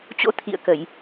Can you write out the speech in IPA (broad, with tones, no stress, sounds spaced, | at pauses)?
t͡ɕ o̰˧˥ t̪ʰ ḭ˧˨ ə̯ k ə˧˩˨ j